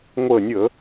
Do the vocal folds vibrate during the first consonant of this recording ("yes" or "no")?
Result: yes